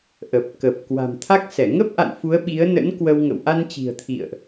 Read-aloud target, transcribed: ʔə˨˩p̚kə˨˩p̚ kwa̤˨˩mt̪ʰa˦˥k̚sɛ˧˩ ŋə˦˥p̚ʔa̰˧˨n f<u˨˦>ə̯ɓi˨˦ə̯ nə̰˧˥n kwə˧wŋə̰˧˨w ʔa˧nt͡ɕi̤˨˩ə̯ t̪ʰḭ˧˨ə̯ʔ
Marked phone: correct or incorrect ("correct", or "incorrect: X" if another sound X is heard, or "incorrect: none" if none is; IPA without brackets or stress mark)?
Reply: correct